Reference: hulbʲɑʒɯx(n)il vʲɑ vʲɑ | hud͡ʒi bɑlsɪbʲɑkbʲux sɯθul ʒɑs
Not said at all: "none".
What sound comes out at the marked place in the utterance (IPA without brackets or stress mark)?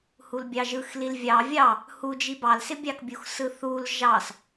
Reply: l